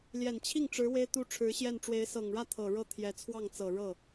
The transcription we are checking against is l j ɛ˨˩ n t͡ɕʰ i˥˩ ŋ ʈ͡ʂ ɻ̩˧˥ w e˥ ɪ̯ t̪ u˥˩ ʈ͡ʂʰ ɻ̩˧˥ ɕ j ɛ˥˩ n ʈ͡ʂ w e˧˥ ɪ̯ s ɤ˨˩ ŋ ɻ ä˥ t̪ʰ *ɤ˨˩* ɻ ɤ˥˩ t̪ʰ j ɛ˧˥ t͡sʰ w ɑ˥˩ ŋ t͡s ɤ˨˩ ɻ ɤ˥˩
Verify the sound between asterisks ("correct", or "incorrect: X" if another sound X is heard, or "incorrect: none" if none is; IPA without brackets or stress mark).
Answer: correct